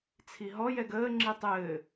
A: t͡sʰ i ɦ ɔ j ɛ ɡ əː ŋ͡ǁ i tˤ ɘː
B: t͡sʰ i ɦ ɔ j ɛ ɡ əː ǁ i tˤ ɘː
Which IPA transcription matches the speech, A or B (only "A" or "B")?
A